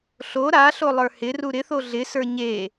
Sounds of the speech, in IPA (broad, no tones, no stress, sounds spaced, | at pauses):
ɬ o ɾ a ɬ o lˠ ə˞ h ɪ r u ɾ ɪ θ o ɮ ɪ s ə˞ ɲ e